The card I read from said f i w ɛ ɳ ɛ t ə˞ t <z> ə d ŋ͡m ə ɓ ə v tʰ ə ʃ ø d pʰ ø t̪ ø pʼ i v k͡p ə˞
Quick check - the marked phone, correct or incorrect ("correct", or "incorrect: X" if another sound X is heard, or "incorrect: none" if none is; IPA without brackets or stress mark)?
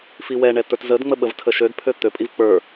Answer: correct